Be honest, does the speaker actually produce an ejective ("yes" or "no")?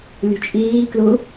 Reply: yes